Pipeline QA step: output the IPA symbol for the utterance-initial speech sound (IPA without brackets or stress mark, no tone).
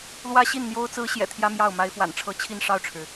l